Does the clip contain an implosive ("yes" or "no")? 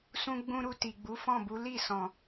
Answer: no